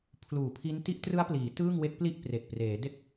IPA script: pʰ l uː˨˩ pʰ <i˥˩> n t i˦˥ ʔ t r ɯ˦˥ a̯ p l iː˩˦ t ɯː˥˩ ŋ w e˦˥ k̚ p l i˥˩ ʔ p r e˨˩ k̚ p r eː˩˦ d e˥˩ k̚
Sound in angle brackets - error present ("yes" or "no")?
yes